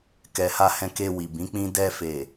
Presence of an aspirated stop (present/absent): absent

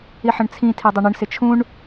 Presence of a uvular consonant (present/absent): absent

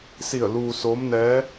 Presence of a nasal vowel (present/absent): absent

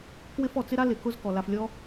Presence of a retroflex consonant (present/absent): absent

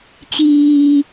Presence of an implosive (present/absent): absent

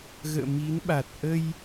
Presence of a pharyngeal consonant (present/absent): absent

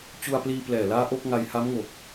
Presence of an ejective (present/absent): absent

